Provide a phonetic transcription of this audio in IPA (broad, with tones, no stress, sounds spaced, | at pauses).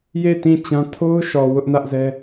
j e˦˨ t ĩ˦˨ t͡ɕ ã˦ tʰ o˦ ʊ̯ ʃ ɔ˨ w ʊ˦ ʔ n ä˦ ʔ z ɛ˦